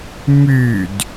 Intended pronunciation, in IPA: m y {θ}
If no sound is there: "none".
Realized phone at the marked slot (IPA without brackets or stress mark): d